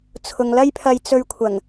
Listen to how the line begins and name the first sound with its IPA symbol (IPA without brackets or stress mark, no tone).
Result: t͡sʰ